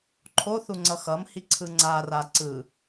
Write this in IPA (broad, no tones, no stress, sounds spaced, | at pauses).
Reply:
ǃʰ o θ u ŋ͡ǀ ʌ x ʌ m h i ǀʰ ɯ ŋ͡ǀ a r a ǀ ɯ